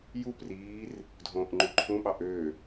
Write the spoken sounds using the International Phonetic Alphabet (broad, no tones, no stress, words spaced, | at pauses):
jupriːr | dʱõːʔŋ͡ǃyǃʰũɓɑ ʔø